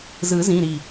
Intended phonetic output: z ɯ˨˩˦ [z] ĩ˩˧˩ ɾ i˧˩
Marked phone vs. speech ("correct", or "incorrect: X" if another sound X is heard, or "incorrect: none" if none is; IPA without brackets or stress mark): correct